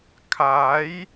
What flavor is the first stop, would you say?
aspirated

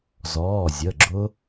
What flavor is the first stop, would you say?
click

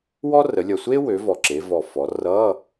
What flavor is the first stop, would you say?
click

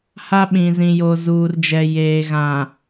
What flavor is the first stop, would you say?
implosive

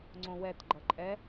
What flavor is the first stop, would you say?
click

